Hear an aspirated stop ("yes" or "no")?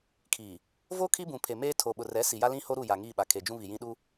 yes